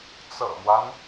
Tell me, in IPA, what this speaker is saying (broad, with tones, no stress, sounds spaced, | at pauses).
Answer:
t͡s ɤ̰˨˩ m w a˦ n